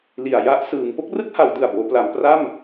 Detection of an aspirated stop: absent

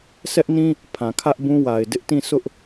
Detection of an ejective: absent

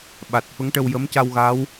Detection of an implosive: present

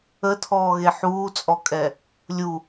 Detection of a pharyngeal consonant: present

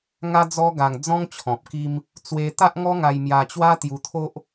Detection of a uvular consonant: absent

